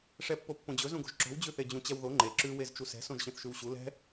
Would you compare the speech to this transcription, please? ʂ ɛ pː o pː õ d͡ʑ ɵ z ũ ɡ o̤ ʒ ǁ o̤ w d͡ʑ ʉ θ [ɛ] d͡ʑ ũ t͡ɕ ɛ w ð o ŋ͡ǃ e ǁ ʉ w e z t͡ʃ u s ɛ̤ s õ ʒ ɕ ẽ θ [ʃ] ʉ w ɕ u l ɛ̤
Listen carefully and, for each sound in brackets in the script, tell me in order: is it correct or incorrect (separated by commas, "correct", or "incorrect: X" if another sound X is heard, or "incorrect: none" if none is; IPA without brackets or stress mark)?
incorrect: e, correct